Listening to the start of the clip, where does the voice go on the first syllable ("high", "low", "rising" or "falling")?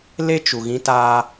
high